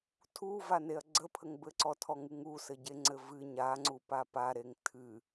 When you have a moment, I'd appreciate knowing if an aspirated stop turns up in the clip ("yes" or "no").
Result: yes